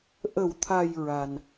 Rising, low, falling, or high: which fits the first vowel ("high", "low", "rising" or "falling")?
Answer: low